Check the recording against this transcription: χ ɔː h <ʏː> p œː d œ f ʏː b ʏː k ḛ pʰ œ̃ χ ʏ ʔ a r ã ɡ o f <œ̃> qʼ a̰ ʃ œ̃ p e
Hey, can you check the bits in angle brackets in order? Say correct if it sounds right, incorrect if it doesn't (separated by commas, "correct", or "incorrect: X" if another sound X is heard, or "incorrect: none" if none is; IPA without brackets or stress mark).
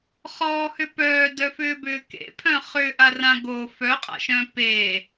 incorrect: ʏ, incorrect: œ